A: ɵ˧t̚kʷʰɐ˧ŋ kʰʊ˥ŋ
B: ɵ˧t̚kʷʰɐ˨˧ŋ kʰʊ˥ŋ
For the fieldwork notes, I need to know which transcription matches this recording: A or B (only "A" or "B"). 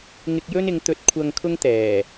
A